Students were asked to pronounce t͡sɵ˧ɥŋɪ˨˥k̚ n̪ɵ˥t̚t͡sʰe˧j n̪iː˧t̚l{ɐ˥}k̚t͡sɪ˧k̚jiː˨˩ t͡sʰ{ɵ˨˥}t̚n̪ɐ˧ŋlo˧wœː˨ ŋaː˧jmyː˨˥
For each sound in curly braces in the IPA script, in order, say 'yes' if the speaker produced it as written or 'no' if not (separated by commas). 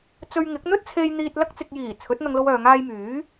yes, yes